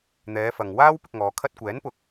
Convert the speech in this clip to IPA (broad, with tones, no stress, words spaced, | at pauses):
n̪ɛː˨˧fɐ˨ŋ waː˥w pɪ˧k̚ŋɔː˨˧ kʰɐ˧t̚kʷɛː˨˥n pʊ˧k̚